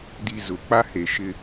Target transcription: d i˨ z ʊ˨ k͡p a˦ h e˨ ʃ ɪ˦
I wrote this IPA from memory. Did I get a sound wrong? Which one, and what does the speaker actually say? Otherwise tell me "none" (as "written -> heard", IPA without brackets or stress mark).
none